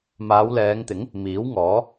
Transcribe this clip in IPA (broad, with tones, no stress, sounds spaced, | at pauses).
m aː˨˧ w l ɛː˨˧ ŋ t̪ ɪ˨˥ ŋ | m iː˨˥ w ŋ ɔː˨˥